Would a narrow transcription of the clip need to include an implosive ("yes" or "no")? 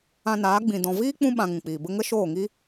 yes